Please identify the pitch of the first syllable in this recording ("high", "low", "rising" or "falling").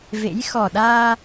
rising